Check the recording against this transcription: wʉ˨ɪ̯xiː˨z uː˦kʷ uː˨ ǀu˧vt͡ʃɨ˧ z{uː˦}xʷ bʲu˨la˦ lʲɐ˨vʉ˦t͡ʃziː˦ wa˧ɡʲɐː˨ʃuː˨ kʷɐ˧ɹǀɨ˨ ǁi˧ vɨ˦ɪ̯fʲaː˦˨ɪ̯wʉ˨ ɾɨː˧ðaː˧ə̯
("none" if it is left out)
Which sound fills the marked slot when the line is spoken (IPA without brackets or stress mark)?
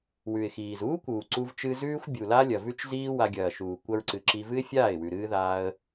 ʉː˦